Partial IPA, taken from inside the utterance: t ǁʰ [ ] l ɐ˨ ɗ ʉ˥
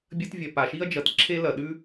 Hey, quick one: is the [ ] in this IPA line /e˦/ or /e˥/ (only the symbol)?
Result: e˥